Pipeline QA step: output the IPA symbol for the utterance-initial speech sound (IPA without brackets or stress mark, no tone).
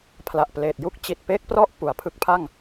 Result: pʰ